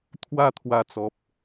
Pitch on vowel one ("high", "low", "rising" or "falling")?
falling